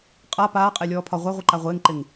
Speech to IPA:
qʼ a p aː qʼ e lʲ ɔː pʰ ɒ ʁʷ a ʁʷ i ǃ a ʁʷ ɪː ŋ ǃ ɪ ŋ

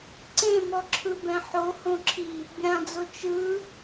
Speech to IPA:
ǀ ẽ m ɔ ǁʰ ɯ b ɛ̃ ħ o h õ ǁʰ i | bʲ ã d͡z o t͡ʃ ɯ

